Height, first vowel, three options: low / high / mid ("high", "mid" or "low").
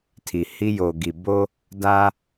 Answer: high